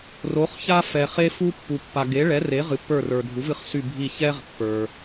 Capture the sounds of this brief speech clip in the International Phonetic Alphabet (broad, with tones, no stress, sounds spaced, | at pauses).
r o˨˥ χ ç a˥ f ɛ˨ χ e˥ f u˥ pː u˨ pː a˨ ɡ e˨˥ ɭ ɛ˨˥ r e˨˥ ʁ ɨ˨ pː ə˞˦˨ r ə˞˨ dʱ u˨˥ v ɨ˨˥ χ s y˦˨ bʱ i˦˨ ç ɛ˥ ʁ pː ə˞˨